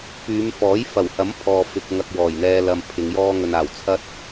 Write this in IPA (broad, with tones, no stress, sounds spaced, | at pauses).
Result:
p yː˨˧ m f ɔː˨˥ j f ɐ˨˩ w h ɐ˨˥ m pʰ ɔː˧ f ɪ˧ k̚ ŋ ɐ˧ k̚ w ɔː˨˩ j n̪ ɛː˧ l ɐ˨ m pʰ ɪ˨˧ ŋ j ɔː˥ ŋ ɵ˧ n aː˨˩ w t͡sʰ ɐ˥ t̚